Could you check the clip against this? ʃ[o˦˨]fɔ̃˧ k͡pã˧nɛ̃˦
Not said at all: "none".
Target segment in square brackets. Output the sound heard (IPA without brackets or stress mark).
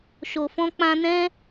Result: o˨